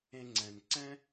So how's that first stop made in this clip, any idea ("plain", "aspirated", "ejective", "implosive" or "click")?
click